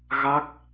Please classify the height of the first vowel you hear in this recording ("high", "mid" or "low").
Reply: low